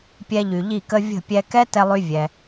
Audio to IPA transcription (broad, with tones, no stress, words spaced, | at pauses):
pʲɛ˧ʎy˨ʎi˦˨kə˦ vʲə̤˦˨pʲɛ˧ kɛ˦ tɛ˦lˠy˦ vʲɛ˧